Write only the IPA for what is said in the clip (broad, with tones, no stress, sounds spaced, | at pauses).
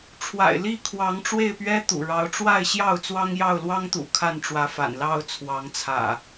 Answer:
ʈ͡ʂʰ w a̰˨˩ ɪ̯ l i˥˨ kʰ w ɑ˨˦ ŋ ʈ͡ʂ w e˥˨ ɪ̯ p ɥ ɛ˦ t̪ ṵ˨˩ ɻ ɑ˨˦ ʊ̯ ʈ͡ʂ w a˥˨ ɪ̯ ɕ j ɑ˥˨ ʊ̯ t͡s w ɑ˦ ŋ j ɑ˥˨ ʊ̯ l w ɑ˦ ŋ t̪ ṵ˨˩ kʰ a˥˨ n ʈ͡ʂ w ä˨˦ f a̰˨˩ n l ɑ˥˨ ʊ̯ t͡sʰ w ɑ˨˦ ŋ t͡sʰ ä̰˨˩